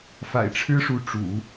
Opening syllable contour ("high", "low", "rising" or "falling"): low